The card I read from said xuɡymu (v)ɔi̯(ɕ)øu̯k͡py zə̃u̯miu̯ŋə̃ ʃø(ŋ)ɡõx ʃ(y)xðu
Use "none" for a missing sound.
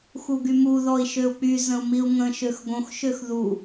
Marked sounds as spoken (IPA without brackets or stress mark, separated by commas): ð, ʃ, x, ø